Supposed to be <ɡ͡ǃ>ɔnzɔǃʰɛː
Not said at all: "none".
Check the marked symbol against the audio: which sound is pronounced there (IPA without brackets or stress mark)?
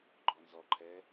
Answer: ɡ͡ǃ